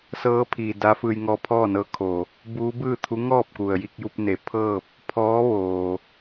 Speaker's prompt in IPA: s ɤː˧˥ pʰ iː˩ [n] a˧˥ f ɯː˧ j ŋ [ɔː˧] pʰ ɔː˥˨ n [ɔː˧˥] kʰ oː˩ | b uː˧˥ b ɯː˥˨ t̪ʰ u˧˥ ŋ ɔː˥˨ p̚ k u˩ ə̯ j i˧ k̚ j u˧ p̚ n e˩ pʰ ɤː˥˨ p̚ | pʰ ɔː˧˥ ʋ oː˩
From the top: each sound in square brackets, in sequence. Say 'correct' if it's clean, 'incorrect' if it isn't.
incorrect: d, correct, incorrect: ɤː˧˥

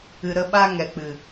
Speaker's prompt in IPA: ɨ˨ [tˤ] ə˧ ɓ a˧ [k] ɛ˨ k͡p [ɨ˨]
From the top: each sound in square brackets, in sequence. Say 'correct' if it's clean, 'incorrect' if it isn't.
incorrect: ɾ, incorrect: ŋ, correct

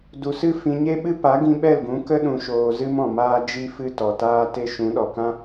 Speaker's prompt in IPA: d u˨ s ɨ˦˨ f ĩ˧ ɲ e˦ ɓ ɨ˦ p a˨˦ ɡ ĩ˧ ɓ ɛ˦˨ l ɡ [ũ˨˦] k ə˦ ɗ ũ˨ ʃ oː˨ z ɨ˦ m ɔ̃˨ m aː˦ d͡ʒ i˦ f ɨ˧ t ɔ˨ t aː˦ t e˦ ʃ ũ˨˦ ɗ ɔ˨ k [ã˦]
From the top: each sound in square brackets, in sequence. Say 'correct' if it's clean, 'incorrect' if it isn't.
correct, correct

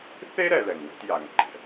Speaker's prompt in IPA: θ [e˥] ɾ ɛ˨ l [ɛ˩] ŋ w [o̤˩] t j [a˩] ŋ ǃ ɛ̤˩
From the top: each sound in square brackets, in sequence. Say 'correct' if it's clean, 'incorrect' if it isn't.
correct, correct, incorrect: o̤˦, correct

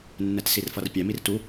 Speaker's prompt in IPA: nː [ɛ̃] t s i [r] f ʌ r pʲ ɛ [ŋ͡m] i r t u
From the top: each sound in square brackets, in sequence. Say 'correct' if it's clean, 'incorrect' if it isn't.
incorrect: ɛ, correct, incorrect: m

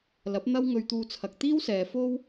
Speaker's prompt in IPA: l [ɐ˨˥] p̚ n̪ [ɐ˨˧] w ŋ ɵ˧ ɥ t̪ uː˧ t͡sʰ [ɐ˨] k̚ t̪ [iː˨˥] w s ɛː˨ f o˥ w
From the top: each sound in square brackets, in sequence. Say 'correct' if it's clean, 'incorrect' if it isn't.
correct, incorrect: ɐ˥, correct, incorrect: iː˥

